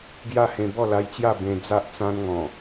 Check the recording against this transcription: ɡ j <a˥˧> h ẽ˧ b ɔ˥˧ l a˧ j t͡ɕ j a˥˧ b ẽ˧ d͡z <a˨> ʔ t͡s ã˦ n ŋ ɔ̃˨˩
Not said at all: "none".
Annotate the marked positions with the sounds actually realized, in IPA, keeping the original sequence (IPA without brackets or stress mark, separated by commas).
a˥˧, a˦